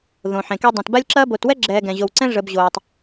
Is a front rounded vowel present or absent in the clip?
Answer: present